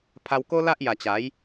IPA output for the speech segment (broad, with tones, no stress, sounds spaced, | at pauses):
pʰ a˧ w k o˦ l a˦ ʔ j a˨˩ t͡ɕ a˨˦ j